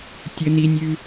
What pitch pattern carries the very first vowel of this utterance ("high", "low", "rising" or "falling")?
low